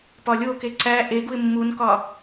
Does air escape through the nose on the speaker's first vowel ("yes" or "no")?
no